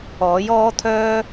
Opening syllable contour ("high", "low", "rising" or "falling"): rising